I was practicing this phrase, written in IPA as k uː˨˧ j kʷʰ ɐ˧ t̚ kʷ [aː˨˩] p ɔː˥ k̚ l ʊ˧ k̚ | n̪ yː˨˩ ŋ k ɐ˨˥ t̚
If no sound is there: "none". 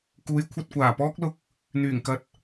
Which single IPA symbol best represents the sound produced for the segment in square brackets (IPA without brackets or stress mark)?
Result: aː˨˩